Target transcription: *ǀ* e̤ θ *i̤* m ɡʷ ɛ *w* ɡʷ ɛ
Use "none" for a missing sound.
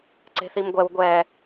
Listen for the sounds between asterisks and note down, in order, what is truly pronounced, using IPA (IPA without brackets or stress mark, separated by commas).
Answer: ǀ, i, w